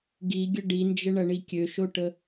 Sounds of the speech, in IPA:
ɡiɡʲə ɖind͡ʒəɳɐɳi kʲøʃoʈə

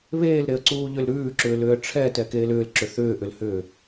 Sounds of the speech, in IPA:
βeːlɾeə̯ǀuː ʎʏlɾʉːǁʏːlʏːə̯ ʈ͡ʂʰɛ tɛkeːlʏːlǁʏ θʏːʔʏlhʏː

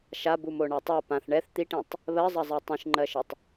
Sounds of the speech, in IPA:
ʃabumo ɳatˤa pãθ ɳɛθ t̪iʈĩtˤ | βɜzˤɐzˤɛ tˤĩʃŋ͡ǃɜʃɐtˤ

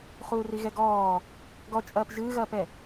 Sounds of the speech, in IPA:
χuːriɣɛɡɔː | ɡɔt͡ʃʼɐːp ʒɨːɣɐːpɛ

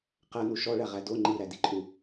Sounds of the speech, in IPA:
qænu ʃɔɭæʁæ do ŋ͡ǃiɾædiǃʼu

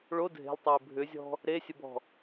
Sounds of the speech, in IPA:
ɭo dʱe̤lˠtˤɛɪ̯ bʱʏzʲɔ̤ | ɾesʲəbɔ̤

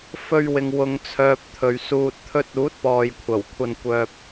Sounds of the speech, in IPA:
fɵ˧ɥwɪ˨ŋ wʊ˨ŋt͡sʰœː˨p̚t̪ʰɵ˨ɥ suː˧t̚t̪ʰɵ˥t̚ uː˨˥t̚pɔː˨jkʷʰɐ˨˩w kʷʰɐ˧nkʷœː˧p̚

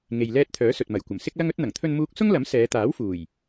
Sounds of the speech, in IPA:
ŋe˨jlɛː˧t̚ t̪ʰœː˨˥sɵ˨t̚mɐ˨˩j kʷɐ˨˩msɪ˥k̚lɐ˥ŋɵ˥t̚ n̪ɐ˨˩ŋt̪ʰɵ˧nmuː˧k̚ sʊ˥ŋlɐ˨˥m sɛː˨˧t̪aː˨˥wfuː˨˩j

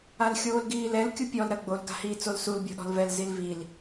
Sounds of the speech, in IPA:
alxʲoːlɡiːlɛl kʲupʲɔl ɾɐɡ͡bol ɡa̤hiːt͡solsul bʲɔ̤ɗɔ̤lvɛl zilvil

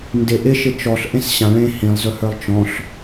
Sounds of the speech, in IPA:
ndɪ ʔɪʃɪ t͡ʃɔɬ ʔẽsɕãɭẽ hĩlˠzɵhə˞lˠ t͡ʃɔ̃ɬ

